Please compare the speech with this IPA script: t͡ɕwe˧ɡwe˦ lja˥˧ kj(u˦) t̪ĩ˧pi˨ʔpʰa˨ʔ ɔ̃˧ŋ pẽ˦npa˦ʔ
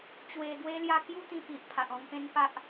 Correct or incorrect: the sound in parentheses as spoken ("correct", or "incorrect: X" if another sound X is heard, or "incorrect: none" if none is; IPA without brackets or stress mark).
correct